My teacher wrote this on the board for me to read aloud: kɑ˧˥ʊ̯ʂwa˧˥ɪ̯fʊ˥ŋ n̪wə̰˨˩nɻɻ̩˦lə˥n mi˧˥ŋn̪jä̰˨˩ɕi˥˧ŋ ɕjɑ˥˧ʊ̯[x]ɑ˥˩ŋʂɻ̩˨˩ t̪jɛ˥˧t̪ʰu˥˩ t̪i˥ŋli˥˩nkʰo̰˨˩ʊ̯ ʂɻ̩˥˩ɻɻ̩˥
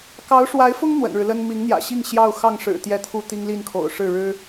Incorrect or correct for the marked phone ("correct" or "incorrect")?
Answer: correct